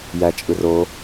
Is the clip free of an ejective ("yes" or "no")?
no